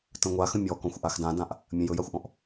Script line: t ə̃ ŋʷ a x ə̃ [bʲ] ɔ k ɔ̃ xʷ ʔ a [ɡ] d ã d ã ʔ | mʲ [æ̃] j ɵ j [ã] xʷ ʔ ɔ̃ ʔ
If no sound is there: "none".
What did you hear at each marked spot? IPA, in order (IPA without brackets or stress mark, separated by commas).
mʲ, x, ə̃, a